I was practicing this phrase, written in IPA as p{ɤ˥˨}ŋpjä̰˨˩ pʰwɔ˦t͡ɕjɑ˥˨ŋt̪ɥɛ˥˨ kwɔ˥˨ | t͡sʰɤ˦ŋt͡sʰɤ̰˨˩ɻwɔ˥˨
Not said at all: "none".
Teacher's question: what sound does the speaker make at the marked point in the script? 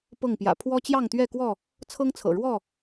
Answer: ɤ˥˨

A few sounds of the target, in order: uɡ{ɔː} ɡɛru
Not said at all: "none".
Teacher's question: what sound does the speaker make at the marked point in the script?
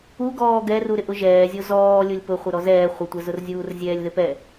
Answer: ɔː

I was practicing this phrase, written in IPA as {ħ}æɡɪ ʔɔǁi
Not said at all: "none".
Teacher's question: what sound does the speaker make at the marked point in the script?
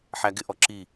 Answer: ħ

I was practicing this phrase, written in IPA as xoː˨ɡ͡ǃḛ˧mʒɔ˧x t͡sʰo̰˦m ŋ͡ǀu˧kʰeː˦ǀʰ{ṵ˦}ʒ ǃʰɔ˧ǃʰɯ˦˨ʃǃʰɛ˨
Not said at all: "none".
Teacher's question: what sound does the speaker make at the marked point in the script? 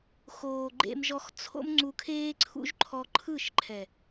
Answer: ṵ˦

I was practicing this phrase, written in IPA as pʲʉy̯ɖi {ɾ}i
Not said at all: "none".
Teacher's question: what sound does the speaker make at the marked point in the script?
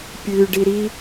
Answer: ɾ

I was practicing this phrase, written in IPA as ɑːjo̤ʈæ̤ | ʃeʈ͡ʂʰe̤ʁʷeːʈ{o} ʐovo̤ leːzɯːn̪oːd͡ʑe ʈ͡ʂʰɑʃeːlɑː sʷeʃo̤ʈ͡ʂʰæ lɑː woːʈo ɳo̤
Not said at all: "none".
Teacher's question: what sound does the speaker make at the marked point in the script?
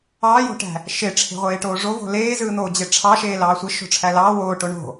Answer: oː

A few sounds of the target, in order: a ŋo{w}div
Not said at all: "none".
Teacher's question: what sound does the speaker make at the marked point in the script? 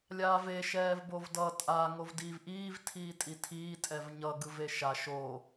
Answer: v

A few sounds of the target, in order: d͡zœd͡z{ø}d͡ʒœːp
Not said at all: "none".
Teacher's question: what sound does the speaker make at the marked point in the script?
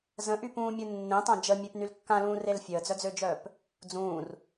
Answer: ø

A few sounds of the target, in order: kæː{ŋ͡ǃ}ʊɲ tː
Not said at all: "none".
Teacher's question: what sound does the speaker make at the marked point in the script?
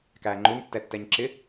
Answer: ŋ͡ǃ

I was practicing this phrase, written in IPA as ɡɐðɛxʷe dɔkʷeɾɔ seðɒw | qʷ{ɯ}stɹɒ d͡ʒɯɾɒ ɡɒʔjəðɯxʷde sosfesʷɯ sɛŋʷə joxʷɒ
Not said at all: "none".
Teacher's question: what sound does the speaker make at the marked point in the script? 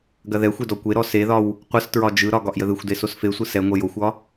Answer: ə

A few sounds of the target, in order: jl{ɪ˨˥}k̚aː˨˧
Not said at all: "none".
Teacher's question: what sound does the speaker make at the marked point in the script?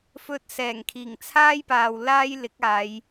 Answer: ɪ˨˥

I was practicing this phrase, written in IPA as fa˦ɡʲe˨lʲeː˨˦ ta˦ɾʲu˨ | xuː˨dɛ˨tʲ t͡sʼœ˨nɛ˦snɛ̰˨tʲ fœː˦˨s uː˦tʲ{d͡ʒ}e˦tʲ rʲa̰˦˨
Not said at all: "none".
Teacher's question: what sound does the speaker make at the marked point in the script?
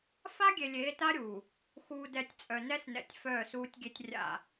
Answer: ɡʲ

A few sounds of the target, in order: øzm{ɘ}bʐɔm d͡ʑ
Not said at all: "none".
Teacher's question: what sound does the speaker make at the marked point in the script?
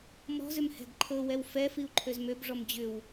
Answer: ø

